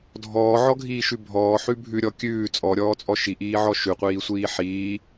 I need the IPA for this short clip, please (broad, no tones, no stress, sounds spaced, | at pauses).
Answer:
dʱ ɔː ʕ ɔ ɡʱ iː ʃ ʉ bʱ ɔː ħ ʉ bʱ ʉ ɾʲ ɔ kʲ ʉː t͡sʼ ɔ ɾʲ ɔː t͡sʼ ɔ ʃ i ʔ iː ʕ ɔ ʃ ʉ qʷ iː sʷ iː ħ iː